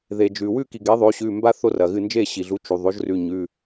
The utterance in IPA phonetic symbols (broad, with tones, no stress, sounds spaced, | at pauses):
ð e˩ d͡ʒ ʉ˩ w ʉ˥˨ k i˩ ɡ e˩˥ ðˤ o˩˥ ɕ ʉ˩˧˩ m b a˦ θ o˦ r ɐ˩ ɣ ɨ˥˨ n d͡ʒ e˥˨ ɕ i˩ ɮ u˩˥ t͡ʃ u˩ ðˤ o˩˥ ʒ r ʉ˩˧˩ ɲ ʉ˩˧˩